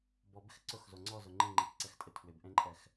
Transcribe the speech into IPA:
b ɔ b ɪ x ǀ ʊ x z o ŋ͡ǀ ɔ z ʊ ŋ͡ǃ ĩ ŋ͡ǃ ĩ k ǀ ɛ x tʼ ɪ tʰ w ɪ b ʔ ẽ ǃʼ ɛ x

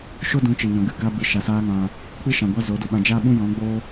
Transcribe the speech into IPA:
ʃ o˦ d ũ˨˦ t͡ʃ i˨ ɲ ɔ̃˨ ɡ ɨ˦˨ ɡ a˦ b ɨ˨˦ ʃ a˨ s aː˦ ŋ ã˧ | k͡p ɨ˦ ʃ ã˨ ɡʷ a˦ z o˨˦ d u˧ ɓ ã˧ d͡ʒ a˦ ɓ ũ˦ j ɔ̃˨˦ ɡ͡b o˦

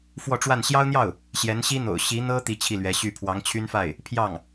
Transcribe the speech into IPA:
f w ɔ˥˧ ʈ͡ʂ w a˥˩ n ɕ j ɑ˥ ʊ̯ n̪ j ɑ˥˩ ʊ̯ | ɕ j ɛ˧˥ n ɕ i˥ n̪ o̰˨˩ ʊ̯ ɕ i˧˥ n̪ ɤ˥ t̪ i˥ t͡ɕʰ i˥˩ l ɥ ɛ˧˥ ɕ y˥˩ pʰ w ɑ˧˥ ŋ t͡ɕʰ y˥ n f a˥˩ ɪ̯ | pʰ j ɑ˥˩ ŋ

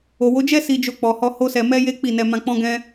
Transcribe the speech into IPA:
o˨ w o˨˦ d͡ʒ ɛ˦ s i˧ d͡ʒ o˧ k͡p ɔ˨ h ɔ˧ h o˦ s ɛ˧ m ɛ˦ j e˦ k͡p i˦˨ n ɛ˧ m ã˧ k͡p ɔ̃˦ ɡ ɛ̃˦

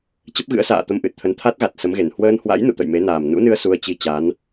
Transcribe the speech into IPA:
t͡ɕ ə˦˥ p̚ ɣ ɨ̰˧˥ ə̯ s a̰ː˧˨ t̪ ə˧ m ʔ ɨ˨˩ t̚ t̪ʰ ə˨˦ n t̪ʰ a˦˥ t̚ ɣ a˨˩ t̚ s ə˨˦ m ɣ e˨˩ n h w əː˧ n h w a̰˧˥ j n ṵ˧˨ t̪ ə̰˧˨ j m e˨˦ n aː˨˩ m n ṵ˧˥ n ɨ˧ ə̯ s u˧ ə̯ t͡ɕ i˧ t͡ɕ a˨˦ n

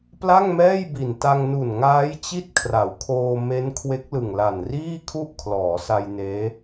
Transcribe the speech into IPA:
p l a˥˩ ŋ m ɛː˥˩ j b i˨˩ n t a˧ ŋ n u˨˩ n ŋ aː˦˥ j t͡ɕ i˥˩ t̚ kʰ r a˩˦ w kʰ oː˧ m e˦˥ n kʰ w e˦˥ k̚ l ɯ˨˩ ŋ l a˨˩ n r iː˥˩ kʰ u˥˩ ʔ kʰ l ɔː˩˦ s a˧ j n eː˦˥

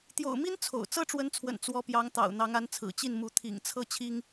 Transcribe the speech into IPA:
t̪ j o̰˨˩ ʊ̯ m i˥ n t͡sʰ o̰˨˩ ʊ̯ t͡s ɤ˥ ʈ͡ʂ w ə˧˥ n t͡sʰ w ə̰˨˩ n t͡s w ɔ˧˥ p j ɑ˧˥ ŋ t̪ ɑ̰˨˩ ʊ̯ n̪ ɑ˧˥ ŋ a˧˥ n t͡sʰ ɹ̩˨˩ t͡ɕ i˥˩ n m u˧˥ t̪ʰ ḭ˨˩ ŋ t͡sʰ ɤ˥˩ t͡ɕʰ i˥ ŋ

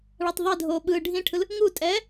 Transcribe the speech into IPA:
ɭ a tˤ ðˤ ɛ dʱ oː ɓ ɯ ɖʱ ĩ ʈʰ ɯ l | ŋ u tʼ ɛː

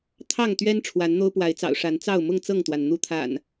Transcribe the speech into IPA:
t̪ʰ ɑ˥˨ ŋ t̪ ɥ ɛ˦ n ʈ͡ʂʰ w a˨˦ n n̪ o˦ ʊ̯ p w a˨˦ ɪ̯ t͡s ɑ̰˨˩ ʊ̯ ʂ a˨˦ n t͡s ɑ˥˨ ʊ̯ m ʊ˥˨ ŋ t͡s ɤ˥˨ ŋ t̪ w a˩ n n̪ u˨˦ t̪ʰ a̰˨˩ n

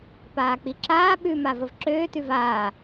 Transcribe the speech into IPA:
p aː k͡p i ǁ aː ɓ ʉ m a v ə v ǁ øː t ʉ v aː

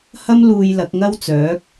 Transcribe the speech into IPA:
h ɐ˥ m l uː˧ j l ɐ˨˥ k̚ ŋ ɐ˥ w t͡s œː˨˥ k̚

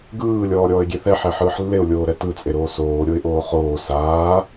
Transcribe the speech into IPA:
ɡ ɯː lʲ ɔː ɾʲ ɔː ɪ̯ ɡʲ e θ ɛ ħ ɛ ħ ɯː ħ lː e ʊ̯ lʲ oː ɾ ɛ t ɯ t͡sʼ e ɾ oː s oː ɾʲ o ɪ̯ ʔ oː χ oː s aː

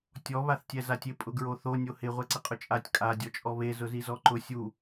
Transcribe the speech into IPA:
tʲ ɔ β a θ tʲ ɛ z a tʲ ɪ pʼ ʊ ɡ ɹ o θ o nʲ o h ɪ ʁʷ ɛ ǀ ɪ qʼ ʊ t͡ʃʼ a tʲ kʼ a dʲ ɔ t͡ʃʼ ɔ β e z ʊ z i z ɔ ǃ ʊ sʲ u

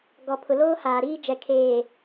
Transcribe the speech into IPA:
ɡ ɔ˨ pʰ ʊ˨ l oː˦ h aː˨ ɾ iː˦ d͡ʒ ɛ˨ kʰ eː˨

